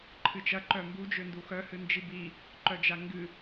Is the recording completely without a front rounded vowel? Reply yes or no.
no